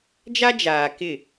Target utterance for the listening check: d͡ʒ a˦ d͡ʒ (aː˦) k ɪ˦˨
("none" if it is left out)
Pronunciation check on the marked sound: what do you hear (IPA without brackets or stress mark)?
aː˨